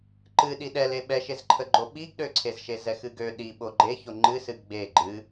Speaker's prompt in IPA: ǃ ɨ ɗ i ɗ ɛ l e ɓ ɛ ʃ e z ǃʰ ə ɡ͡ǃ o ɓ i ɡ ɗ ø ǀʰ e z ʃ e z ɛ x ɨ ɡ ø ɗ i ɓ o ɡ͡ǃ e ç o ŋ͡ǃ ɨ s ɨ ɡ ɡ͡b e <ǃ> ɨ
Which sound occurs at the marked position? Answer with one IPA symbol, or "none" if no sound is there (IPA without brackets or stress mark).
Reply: ɡ͡ǃ